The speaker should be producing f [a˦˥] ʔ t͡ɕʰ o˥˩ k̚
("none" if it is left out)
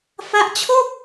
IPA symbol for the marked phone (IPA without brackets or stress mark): a˦˥